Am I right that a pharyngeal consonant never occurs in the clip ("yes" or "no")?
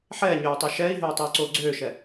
no